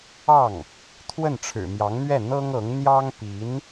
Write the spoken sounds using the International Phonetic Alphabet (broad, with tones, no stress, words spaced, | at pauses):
ɑ˥˩ŋ | t̪ʰwə˥˩nʈ͡ʂʰɻ̩˨˩mjɑ˧˥ŋn̪ɥɛ˥˩ n̪ɤ˥ŋɤ˧˥ŋ n̪jɑ˥ŋpi˧˥n